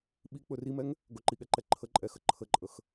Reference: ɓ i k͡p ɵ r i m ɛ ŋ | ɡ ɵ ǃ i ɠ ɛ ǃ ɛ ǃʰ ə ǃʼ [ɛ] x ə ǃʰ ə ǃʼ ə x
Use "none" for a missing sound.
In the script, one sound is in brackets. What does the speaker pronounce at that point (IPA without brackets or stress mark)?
ɛ